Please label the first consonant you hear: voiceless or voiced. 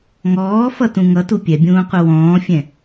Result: voiced